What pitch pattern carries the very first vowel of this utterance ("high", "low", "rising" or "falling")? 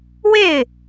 falling